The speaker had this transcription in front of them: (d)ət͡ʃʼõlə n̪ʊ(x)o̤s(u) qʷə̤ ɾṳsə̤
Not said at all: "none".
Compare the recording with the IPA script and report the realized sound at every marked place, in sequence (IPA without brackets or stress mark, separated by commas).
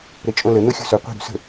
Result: ɾ, xʲ, ʊ